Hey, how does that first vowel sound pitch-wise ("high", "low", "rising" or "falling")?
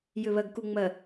low